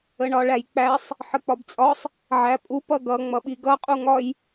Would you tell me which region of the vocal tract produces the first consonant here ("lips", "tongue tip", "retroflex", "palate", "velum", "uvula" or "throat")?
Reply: retroflex